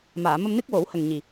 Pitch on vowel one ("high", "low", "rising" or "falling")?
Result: low